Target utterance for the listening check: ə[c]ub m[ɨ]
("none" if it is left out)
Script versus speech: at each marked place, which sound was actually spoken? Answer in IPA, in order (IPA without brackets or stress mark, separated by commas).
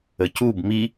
c, i